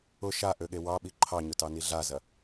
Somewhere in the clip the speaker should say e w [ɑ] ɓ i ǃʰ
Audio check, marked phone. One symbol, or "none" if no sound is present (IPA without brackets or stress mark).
ɑ